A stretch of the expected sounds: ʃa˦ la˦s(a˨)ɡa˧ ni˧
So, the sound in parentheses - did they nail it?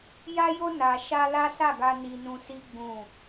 no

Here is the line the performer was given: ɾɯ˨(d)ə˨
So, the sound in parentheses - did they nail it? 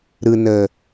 no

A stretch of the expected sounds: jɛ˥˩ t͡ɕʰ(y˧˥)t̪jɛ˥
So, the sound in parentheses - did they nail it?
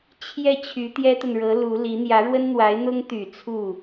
yes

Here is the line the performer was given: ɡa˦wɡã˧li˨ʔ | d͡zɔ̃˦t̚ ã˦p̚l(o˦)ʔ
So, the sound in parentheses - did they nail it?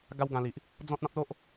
yes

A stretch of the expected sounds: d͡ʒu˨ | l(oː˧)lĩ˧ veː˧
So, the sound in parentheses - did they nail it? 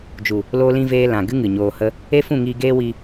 yes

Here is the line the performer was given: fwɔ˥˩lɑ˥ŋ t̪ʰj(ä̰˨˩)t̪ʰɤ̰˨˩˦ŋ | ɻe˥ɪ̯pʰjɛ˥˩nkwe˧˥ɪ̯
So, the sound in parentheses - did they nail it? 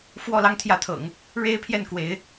no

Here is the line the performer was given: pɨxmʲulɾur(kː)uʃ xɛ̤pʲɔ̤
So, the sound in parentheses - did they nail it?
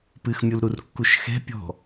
yes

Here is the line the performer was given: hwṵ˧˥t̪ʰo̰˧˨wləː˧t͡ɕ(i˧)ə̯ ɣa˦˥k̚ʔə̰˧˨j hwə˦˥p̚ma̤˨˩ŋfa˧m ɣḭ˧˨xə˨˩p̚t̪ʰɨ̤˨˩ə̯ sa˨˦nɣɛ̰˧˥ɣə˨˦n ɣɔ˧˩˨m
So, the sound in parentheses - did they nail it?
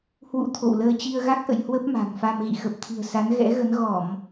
yes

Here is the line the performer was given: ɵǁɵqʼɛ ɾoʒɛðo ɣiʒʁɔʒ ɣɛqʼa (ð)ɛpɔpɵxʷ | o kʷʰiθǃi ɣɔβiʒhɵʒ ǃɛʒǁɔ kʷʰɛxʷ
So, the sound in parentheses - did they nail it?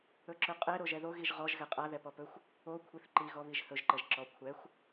yes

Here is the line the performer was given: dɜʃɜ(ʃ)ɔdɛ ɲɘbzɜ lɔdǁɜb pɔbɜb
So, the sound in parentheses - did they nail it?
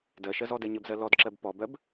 no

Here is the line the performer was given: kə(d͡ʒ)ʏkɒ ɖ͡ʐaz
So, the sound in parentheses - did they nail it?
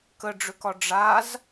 no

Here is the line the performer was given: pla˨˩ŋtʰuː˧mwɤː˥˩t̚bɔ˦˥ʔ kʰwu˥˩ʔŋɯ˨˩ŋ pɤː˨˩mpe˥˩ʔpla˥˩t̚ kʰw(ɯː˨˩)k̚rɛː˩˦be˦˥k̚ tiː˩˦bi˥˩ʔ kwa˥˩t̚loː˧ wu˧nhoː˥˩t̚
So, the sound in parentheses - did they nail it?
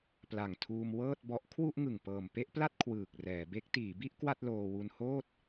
yes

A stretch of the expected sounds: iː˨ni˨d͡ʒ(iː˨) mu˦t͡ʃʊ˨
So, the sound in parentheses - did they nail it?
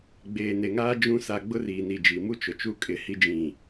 no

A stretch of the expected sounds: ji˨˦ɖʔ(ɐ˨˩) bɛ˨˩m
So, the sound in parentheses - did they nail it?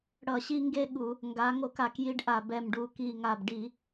no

